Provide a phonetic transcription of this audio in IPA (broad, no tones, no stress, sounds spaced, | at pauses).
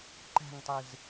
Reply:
ǃ æ̤ ŋ tˤ ɯ z